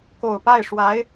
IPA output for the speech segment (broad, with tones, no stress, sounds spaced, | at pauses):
k o˨˩ ʊ̯ p a˥˩ ɪ̯ ʂ w a˧˥ ɪ̯